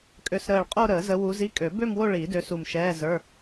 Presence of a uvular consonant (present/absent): present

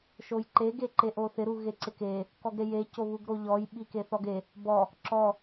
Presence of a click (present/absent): present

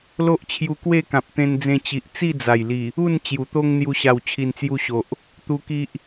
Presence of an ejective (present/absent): absent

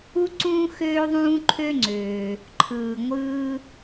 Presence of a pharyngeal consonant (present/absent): absent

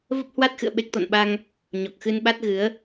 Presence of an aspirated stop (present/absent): absent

